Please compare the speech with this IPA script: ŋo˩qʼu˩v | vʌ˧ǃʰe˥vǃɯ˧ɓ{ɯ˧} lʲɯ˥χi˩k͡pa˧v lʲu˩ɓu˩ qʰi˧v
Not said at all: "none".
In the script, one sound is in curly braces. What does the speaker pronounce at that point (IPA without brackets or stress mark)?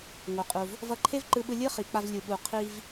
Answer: ɯ˧